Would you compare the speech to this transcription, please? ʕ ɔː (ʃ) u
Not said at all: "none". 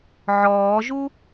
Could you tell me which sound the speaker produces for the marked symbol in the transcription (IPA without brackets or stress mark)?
ʒ